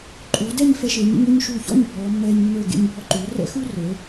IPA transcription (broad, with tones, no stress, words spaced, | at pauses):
ǃʼuː˩˧dɛ˥˧ɲ fɛ˧ʃeː˩˧ɲḛ˧ɲ o˥˧ɲʃuː˧˩çɔ̰˥˧ɲ bʱɔː˩˧mːɛː˧ɲ mːə˞˧˩ɡḛ˧ɲ bʱɔ˧ǃyː˩˧ rɛ̰˥xu˥rə˞˩˧